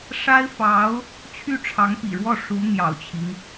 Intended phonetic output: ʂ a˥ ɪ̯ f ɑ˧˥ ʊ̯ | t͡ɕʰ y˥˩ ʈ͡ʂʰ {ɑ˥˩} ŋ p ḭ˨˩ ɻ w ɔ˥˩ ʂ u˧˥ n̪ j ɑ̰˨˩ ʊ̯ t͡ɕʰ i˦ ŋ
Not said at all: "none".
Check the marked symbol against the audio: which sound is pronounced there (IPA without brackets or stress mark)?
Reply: ɑ˧˥